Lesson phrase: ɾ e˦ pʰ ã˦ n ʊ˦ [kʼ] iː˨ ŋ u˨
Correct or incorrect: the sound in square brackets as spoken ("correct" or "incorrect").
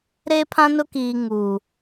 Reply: incorrect